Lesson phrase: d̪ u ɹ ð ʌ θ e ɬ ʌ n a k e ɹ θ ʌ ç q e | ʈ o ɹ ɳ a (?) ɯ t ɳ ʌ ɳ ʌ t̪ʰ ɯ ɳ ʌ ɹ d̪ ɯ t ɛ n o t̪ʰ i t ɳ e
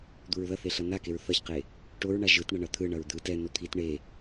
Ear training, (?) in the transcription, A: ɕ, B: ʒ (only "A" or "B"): B